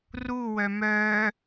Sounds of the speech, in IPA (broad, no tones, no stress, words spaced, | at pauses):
ruwœ mœ